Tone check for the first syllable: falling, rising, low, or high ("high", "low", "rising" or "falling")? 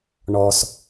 low